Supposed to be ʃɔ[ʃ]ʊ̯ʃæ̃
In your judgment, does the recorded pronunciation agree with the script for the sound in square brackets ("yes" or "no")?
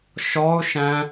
no